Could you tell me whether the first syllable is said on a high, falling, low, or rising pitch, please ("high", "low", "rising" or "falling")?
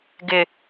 low